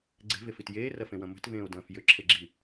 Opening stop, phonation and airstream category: click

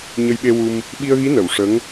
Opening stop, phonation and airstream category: implosive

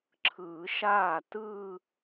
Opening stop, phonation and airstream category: click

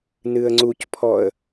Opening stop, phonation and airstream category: click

